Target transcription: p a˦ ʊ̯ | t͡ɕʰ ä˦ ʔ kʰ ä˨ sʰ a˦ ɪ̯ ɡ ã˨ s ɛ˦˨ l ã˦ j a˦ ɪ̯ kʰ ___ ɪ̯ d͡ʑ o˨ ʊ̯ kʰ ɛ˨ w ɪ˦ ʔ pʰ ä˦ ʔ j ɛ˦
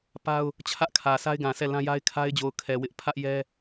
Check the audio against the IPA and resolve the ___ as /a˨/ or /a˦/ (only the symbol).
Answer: a˦